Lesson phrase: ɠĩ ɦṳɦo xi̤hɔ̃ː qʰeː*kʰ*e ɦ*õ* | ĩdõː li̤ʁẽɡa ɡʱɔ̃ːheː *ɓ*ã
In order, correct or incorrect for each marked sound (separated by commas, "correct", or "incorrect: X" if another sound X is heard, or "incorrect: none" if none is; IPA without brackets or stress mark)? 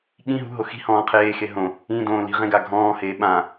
incorrect: x, correct, correct